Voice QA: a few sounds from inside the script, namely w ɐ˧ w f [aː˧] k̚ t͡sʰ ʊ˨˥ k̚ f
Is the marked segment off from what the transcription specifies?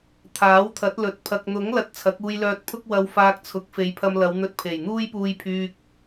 no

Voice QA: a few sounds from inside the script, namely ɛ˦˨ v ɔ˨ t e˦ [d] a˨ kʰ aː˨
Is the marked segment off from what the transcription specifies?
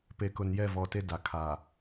no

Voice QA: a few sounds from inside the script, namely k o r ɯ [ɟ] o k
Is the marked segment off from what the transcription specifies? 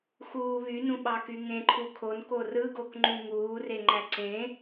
yes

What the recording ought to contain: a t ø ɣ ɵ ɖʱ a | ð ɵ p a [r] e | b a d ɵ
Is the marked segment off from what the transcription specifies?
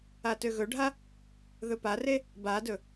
no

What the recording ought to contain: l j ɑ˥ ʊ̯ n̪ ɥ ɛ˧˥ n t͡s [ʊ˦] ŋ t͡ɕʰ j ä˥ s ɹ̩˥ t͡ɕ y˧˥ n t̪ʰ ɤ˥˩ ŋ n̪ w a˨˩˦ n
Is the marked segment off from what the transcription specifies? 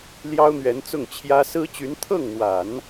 yes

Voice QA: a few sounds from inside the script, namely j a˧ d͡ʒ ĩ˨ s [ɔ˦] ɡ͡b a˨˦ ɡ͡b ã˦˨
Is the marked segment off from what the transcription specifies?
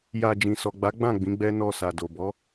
yes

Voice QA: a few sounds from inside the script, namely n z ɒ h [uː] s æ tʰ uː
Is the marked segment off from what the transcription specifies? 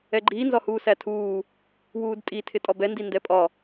no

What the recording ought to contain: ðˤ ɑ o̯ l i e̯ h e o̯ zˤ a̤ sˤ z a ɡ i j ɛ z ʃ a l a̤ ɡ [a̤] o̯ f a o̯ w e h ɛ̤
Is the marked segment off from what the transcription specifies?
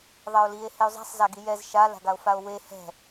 yes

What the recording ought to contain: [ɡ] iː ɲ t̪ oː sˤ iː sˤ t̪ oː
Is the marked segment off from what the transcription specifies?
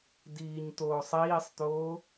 yes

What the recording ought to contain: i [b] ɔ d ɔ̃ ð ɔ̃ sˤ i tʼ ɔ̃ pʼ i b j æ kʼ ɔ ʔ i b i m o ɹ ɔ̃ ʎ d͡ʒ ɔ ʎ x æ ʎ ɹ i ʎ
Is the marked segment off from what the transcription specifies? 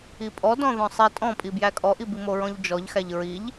yes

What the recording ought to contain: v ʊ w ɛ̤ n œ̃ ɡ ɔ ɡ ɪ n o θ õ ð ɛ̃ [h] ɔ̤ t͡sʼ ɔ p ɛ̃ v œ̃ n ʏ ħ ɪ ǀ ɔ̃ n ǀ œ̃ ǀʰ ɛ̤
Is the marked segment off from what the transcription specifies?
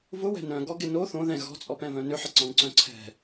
yes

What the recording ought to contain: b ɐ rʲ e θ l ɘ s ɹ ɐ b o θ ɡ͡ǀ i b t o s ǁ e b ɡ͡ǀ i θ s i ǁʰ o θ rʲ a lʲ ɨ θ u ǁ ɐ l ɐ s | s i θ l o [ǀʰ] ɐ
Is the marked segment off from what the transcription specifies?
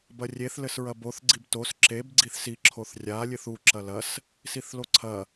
no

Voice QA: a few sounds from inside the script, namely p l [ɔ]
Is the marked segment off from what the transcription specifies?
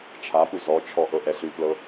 yes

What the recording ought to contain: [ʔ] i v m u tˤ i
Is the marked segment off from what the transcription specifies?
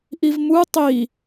no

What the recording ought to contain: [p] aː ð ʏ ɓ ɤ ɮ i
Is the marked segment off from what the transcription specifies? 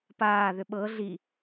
no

